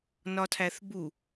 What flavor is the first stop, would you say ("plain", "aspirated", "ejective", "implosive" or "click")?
aspirated